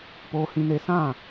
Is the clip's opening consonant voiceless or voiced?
voiceless